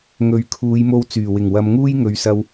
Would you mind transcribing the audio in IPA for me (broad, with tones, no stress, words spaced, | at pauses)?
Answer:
ŋɵ˨ɥkʰuː˨˧jmo˧w t͡syː˨˩wɪ˨˩ŋwɐ˨˧mŋuː˥j ŋɵ˨ɥsɐ˧w